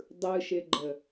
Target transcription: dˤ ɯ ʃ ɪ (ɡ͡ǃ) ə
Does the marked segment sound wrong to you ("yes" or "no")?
no